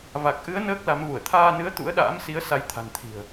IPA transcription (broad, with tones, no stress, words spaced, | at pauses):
va˨˩k̚ʔɨ˨˦ə̯ nəː˦˥k̚ la˨˦mvu˧˩ə̯ t̪ʰaː˧nɨ˨˦ə̯ t̪ṵ˧˥ə̯ɗa̰ː˧˥msi˨˦ə̯ sa˨˦jt̪ʰa̤˨˩n t̪ʰi̤˨˩ə̯